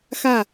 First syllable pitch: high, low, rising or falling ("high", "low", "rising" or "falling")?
falling